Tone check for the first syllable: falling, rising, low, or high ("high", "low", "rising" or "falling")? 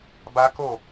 high